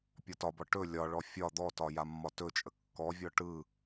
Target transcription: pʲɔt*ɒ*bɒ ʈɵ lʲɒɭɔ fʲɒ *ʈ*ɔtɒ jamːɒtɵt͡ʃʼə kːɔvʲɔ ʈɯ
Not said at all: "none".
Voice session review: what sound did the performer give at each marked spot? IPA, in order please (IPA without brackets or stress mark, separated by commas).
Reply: ɒ, d̪